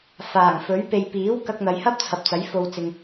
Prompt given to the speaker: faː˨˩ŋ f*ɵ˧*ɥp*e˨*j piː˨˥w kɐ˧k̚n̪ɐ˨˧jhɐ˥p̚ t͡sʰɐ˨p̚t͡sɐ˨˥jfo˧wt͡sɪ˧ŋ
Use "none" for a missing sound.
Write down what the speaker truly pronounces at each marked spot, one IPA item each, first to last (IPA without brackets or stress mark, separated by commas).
ɵ˨˥, e˨